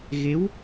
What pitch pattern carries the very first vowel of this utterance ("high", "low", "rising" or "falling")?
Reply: rising